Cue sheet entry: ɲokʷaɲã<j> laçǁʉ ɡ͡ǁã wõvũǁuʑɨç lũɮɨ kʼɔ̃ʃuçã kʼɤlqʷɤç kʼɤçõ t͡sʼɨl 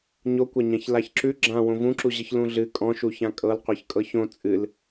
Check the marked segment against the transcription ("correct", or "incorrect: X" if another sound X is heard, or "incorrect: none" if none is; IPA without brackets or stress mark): incorrect: ç